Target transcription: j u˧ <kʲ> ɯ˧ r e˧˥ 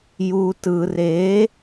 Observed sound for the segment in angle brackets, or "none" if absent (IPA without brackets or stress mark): t